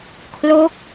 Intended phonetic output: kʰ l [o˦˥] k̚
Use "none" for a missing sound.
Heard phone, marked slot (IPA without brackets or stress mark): o˦˥